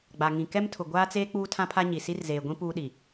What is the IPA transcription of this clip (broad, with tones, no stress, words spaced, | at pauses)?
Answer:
ɡ͡ba˨ŋĩ˨ kɛ˦mtʰʊ˨ ɡʷaː˦t͡seː˦ k͡puː˦tʰã˦pʰa˦ ɲi˨ si˦rzeː˨ɡʷĩ˦ puː˦ɗi˨